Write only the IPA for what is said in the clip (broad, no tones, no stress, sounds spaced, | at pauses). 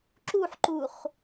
ǁ u ħ ǃ u χ